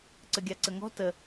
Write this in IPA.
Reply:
ǀ ə ɡʲ a ǀ ə ŋ ɔ̤ t ə

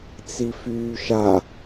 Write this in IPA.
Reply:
t͡s i f yː ʃ a

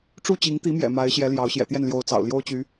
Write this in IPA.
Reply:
ʈ͡ʂ u˥˩ t͡ɕ i˧˥ ŋ t̪ i˧˥ m j ɛ̰˨˩ m a˧˥ ɪ̯ ɕ j ɛ˧˥ l j ɑ˧˥ ʊ̯ ɕ j ɛ̰˨˩ t̪ j ɛ˥˩ n l j o˧˥ ʊ̯ t͡s ɑ̰˨˩ ʊ̯ l j o˥ ʊ̯ t͡ɕ y˧˥

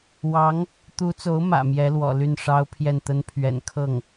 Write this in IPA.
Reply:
w ɑ˧˥ ŋ | t̪ u˧˥ t͡s o˧˥ ʊ̯ m ä̰˨˩ m j ɛ˧˥ l w ɔ̰˨˩ l y˥˩ n ʂ ɑ˥ ʊ̯ pʰ j ɛ˥˩ n t̪ ə˥ n pʰ ɥ ɛ̰˨˩ n kʰ ɤ˥˩ ŋ

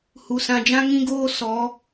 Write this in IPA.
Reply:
h u˨ s ã˨ d͡ʒ ã˦ ŋ ĩ˦ ɡ oː˦ s ɔ˨˦

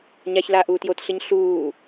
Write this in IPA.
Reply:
ɲ a ç l aː ʔ uː t j o t ɬ ɯ ɲ ɬ uː

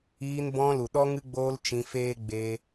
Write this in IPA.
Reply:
iː˧ n b ɔ̃˧ l u˨ ɗ ɔ˧ ŋ ɨ˧ ɡ͡b oː˧ l t͡ʃ ĩ˧ f eː˦ ɡ͡b eː˧

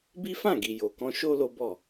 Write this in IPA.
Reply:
b i˦ f ã˦˨ ɡ i˨ j o˨ k ɔ̃˧ ʃ o˦ l o˦ b ɔ˦˨

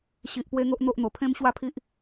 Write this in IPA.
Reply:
ɕ i˨ ʔ p w e˦ ŋ o˦ ʔ n̪ o˦ ʔ n̪ o˨˩ pʰ ẽ˦ m ɕ w a˥˧ pʰ i˦ ʔ

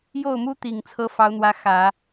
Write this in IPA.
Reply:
j o˥˩ ʊ̯ m u˥ t̪ i˨˩ ŋ t͡sʰ ɤ˧˥ f ɑ˧˥ ʊ̯ n̪ w ä˧˥ x ä˨˩˦

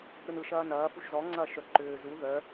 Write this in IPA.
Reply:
ɾ ɯ n ɯ ʃ ɐː n ɐː f u ʃ z ɔ ŋ͡ǀ ɐː ʃ œ ǃ ʏː z u ð œ

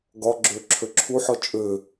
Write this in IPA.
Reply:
ɡ ɒ ɡ͡ǁ ø ǁʰ ø ǁʰ u ħ ɔ t͡ʃʼ ø

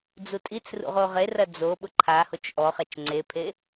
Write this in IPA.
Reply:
d͡z u tʼ i t͡s r ṵ ʁ o ʁ e r ɐ d͡z o ɓ ʊ ǃʰ a h o t͡ʃ ʔ ɔ χ ɛ t͡ʃ ŋ͡ǀ e pʰ e

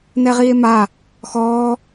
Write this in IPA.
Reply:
n ɛ ʁ iː e̯ m a | x ɔː

